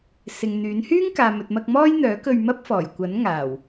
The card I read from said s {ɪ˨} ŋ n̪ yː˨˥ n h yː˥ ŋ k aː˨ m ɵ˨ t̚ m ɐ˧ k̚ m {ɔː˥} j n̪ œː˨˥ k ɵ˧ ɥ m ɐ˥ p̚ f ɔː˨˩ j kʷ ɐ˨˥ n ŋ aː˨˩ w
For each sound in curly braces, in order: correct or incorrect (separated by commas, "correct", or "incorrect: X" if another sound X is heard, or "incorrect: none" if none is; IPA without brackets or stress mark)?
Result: correct, correct